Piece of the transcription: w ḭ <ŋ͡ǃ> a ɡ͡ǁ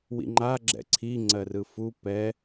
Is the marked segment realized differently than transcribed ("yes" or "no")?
no